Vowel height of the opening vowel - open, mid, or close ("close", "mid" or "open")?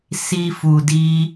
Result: close